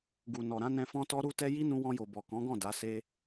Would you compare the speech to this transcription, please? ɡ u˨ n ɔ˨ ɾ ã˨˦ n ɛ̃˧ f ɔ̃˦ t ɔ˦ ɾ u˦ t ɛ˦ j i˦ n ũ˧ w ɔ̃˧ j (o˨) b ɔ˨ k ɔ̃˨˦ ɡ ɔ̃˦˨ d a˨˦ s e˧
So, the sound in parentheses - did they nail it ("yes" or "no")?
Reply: yes